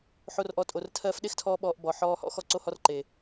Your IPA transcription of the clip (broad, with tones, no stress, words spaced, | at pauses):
ħo˧rʔɔ˨˦tʼo˨r tʰɜː˧fɗe˦xtʰɔː˧ ɓɔː˧ʔbɔ˨ ħɔː˧hɔ̰˦ xɔ˦ǀo˦hɔ˦rǃe˨